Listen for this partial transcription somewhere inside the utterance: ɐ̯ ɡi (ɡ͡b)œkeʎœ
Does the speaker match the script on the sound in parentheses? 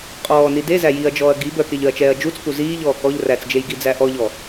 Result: no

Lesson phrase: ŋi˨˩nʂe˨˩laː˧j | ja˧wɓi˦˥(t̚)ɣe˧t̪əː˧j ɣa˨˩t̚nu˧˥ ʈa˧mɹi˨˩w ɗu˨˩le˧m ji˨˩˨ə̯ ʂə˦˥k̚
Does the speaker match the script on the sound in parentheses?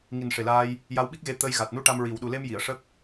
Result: no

